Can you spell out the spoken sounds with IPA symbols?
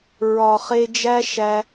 ɹ ɒ˨ χ e˧ d͡ʒ æ˦ ʃ æ˧

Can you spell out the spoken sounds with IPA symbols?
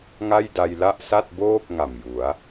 ŋ a˥˩ j d a˧ j l a˥˩ ʔ s a˥˩ t̚ b oː˥˩ p̚ ŋ a˨˩ m j u˩˦ a̯

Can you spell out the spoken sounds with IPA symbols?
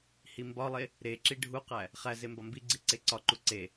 h i m b ɒ lˠ e | ɾ e ǁ i ɖʱ u q æ | χ æ z e m b ɒ m b i ɡ͡ǀ i ǀ e ǀ ɒ ǃ u ǀ e

